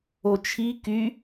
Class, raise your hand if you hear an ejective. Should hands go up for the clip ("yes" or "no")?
no